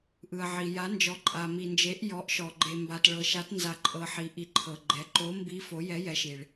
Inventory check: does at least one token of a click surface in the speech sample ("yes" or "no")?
yes